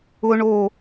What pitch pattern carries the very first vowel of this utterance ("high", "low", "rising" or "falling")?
high